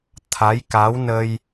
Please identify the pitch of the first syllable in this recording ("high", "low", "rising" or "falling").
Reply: rising